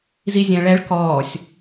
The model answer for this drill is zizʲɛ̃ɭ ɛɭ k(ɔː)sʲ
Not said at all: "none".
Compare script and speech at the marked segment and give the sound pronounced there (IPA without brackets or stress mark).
ɔː